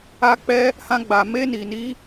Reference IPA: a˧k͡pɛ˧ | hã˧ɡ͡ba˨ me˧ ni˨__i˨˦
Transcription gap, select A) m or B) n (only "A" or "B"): B